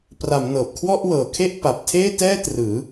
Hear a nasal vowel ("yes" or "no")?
no